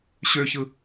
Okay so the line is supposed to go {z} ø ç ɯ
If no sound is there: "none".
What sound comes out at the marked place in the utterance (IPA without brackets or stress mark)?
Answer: ɕ